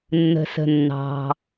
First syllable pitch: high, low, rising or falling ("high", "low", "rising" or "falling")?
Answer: low